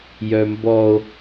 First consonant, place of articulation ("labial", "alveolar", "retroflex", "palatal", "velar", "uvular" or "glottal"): palatal